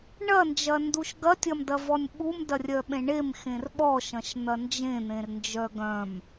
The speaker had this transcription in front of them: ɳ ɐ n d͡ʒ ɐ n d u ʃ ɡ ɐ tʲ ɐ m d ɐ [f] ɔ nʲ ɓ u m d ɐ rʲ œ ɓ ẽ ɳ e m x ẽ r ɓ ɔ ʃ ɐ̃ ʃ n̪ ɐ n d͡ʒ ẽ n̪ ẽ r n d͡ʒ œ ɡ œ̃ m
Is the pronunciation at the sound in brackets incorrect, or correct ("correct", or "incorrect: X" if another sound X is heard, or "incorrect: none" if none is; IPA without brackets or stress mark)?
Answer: incorrect: v